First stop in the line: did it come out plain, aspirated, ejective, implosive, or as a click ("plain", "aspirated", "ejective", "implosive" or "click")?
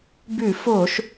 plain